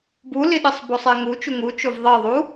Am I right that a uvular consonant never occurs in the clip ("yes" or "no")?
yes